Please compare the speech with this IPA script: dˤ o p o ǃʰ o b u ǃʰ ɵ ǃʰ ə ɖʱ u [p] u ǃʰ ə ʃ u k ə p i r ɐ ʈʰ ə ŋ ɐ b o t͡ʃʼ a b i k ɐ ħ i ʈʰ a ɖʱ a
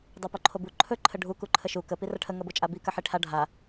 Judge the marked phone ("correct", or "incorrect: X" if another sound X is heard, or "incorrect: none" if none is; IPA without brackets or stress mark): incorrect: k